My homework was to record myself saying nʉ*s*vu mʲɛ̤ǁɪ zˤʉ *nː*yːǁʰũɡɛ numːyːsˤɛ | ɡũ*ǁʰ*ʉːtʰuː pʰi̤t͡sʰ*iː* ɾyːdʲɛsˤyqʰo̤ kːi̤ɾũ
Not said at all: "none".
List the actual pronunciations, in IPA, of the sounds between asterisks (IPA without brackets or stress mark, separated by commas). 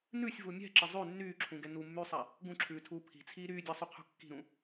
sʲ, nː, ǁʰ, iː